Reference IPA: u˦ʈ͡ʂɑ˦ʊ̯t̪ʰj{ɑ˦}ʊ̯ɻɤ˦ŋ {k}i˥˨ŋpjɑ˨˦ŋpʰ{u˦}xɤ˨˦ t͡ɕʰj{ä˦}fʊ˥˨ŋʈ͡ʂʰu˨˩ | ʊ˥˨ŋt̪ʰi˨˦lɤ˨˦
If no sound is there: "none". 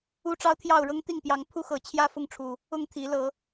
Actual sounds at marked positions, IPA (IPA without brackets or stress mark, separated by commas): ɑ˥˨, t̪, u˦, ä˥˨